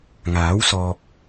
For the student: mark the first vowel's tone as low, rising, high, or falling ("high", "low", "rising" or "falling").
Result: rising